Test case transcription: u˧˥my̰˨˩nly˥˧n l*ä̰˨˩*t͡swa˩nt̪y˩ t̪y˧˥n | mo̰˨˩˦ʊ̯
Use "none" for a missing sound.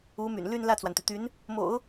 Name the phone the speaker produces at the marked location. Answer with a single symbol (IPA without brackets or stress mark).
ä˥˩